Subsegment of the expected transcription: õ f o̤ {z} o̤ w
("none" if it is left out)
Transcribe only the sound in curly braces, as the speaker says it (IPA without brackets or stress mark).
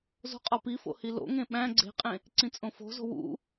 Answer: z